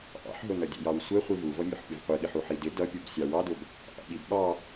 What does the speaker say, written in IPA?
ʔ ɑ̰ ħ ɦ ʊ n ʌ dʲ ɛ̰ j ɑ w sʷ ɛ χʷ i v u v ʌ mʲ ʊ ħ pʲ ʊ v qʷ i ɠ ɪ ħ u ħ i d ɪ d ʌ pʲ u b sʲ ɑ w ɑ d ʊ b | ʔ ɑ̰ ɓ i b ɓ ɑ

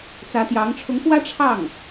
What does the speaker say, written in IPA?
t͡s ä˧˥ t̪ j ɑ˧˥ ŋ ʈ͡ʂʰ ʊ˧˥ ŋ f w ä˥ ʈ͡ʂʰ ɑ˥˩ ŋ

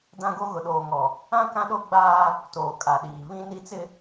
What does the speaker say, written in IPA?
d ã˦ ɡ o˦ ɣ ʊ˨ ɗ oː˨ ŋ ɔ˨ | ã˦ k ã˦ ɗ o˦ ɡ͡b aː˦ | t oː˨ kʼ a˨ ɗ iː˨ β ĩ˦ n i˦ t͡s ɪ˦

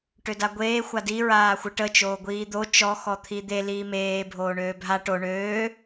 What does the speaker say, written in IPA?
ʈ ø d a ɡʷ eː xʷ a d i ɹ aː xʷ ə ʈ ə t͡ʃ oː ɡʷ iː d̪ o t͡ʃ ɔ x ɔ t̪ʰ i d̪ e l iː m eː bʱ oː ɳ øː bʱ a ʈ o ɳ øː

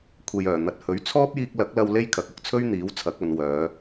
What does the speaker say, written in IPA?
kʷʰ e˨ j œː˨˩ n̪ ɐ˨ t̚ h ɵ˨˥ ɥ t͡sʰ ɔː˥ p̚ j iː˧ k̚ l ɐ˨˥ k̚ l ɐ˧ w l e˥ j kʰ ɐ˨ k̚ ʊ˧ k̚ t͡sʰ ɵ˥ ɥ n̪ iː˨˥ w t͡sʰ ɐ˨˥ k̚ ɐ˨˧ n w œː˨˧

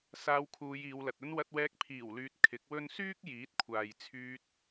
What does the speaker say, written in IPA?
s aː˧ w kʰ uː˨˧ j iː˨˧ w l ɐ˨ t̚ ɵ˧ n w ɐ˧ t̚ w ɛː˧ k̚ pʰ iː˨˩ w l yː˨ t̚ kʰ ɪ˨˥ k̚ w ɵ˥ n s yː˥ k̚ j iː˨˥ t̚ kʷʰ aː˨ j t͡sʰ yː˧ t̚

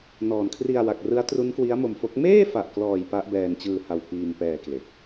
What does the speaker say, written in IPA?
n ɔː˨˩ n kʰ r i˧ a̯ w a˨˩ k̚ r ɯ˦˥ a̯ t r u˦˥ n k w i˦˥ a̯ m o˧ m f o˦˥ k̚ m eː˥˩ f a˨˩ ʔ k l ɔː˨˩ j p a˦˥ ʔ b ɛː˧ n t͡ɕ ɯː˧ h a˧ w p iː˧ m p ɛː˧ k l e˨˩ k̚

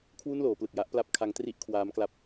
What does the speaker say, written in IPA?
kʰ w u˥˩ n l oː˩˦ p l ɯ˨˩ k̚ j a˦˥ ʔ p l a˦˥ p̚ kʰ a˦˥ ŋ t r i˥˩ ʔ kʰ w aː˦˥ m k l a˦˥ p̚

